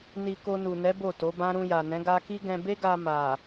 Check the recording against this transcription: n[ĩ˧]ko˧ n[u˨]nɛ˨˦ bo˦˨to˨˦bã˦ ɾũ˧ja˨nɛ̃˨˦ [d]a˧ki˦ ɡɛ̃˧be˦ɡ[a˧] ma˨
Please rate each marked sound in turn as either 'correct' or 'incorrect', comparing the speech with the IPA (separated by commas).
incorrect, correct, incorrect, correct